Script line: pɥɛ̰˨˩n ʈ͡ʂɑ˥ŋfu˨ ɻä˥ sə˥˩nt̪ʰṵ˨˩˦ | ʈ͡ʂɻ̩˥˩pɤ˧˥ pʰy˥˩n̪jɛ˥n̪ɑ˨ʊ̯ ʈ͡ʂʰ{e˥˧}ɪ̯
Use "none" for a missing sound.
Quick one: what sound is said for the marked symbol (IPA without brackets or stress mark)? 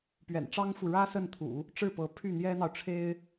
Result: e˥